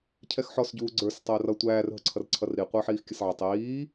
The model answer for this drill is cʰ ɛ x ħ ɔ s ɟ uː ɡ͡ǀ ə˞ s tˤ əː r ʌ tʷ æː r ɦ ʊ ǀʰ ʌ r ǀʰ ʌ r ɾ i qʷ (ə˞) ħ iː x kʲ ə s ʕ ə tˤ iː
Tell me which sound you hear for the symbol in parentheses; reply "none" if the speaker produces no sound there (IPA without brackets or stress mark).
ə˞